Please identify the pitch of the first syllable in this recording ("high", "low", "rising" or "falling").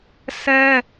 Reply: high